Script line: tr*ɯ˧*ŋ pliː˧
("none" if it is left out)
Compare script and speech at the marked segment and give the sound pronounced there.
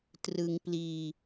ɯ˧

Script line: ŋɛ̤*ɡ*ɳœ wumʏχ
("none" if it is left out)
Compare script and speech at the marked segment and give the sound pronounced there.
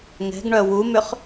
ɡ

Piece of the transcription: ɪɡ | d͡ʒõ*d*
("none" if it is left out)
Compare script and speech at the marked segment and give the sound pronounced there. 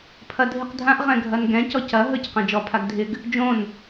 n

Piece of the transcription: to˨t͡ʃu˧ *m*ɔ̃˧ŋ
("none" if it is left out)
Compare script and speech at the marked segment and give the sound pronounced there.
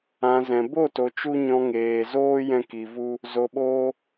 ɲ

